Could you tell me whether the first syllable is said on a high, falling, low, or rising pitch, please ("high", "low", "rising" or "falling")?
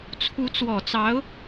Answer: rising